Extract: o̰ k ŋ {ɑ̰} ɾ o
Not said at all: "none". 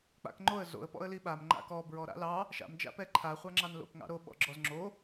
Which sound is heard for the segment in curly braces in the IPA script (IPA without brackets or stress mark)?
ɑ̰